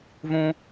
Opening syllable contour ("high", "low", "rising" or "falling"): high